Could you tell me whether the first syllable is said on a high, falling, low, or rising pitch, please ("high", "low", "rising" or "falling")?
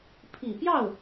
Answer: low